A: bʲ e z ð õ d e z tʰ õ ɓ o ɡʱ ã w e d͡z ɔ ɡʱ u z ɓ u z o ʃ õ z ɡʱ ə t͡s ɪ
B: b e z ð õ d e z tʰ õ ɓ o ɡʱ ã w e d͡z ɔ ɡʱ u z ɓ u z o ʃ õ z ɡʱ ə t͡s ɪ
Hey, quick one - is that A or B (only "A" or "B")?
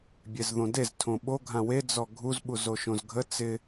A